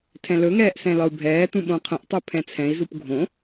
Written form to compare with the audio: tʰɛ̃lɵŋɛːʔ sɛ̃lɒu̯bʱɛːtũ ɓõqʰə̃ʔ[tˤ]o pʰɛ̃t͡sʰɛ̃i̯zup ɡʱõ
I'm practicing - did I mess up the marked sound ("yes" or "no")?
no